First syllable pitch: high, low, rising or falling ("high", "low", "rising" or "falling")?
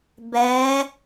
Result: rising